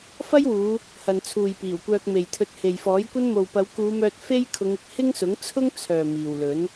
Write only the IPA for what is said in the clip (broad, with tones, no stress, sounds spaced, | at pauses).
f ɐ˥ j w uː˨˧ | h ɐ˨ n t͡sʰ uː˨ j p iː˨˩ w kʷ œː˧ k̚ m e˨ j t̪ʰ ɵ˧ t̚ h e˨ j f ɔː˨˥ j kʷ ɐ˥ n m o˨ w p ɐ˨˧ w k uː˨˧ m œː˧ t̚ f e˥ j kʰ ʊ˨˧ ŋ ɪ˨ k̚ h ɪ˥ ŋ s ʊ˨˥ ŋ t͡sʰ ʊ˥ ŋ t͡sʰ œː˨ m iː˨ w l ɵ˨˥ n